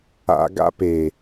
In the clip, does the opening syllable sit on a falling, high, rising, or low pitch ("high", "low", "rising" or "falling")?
low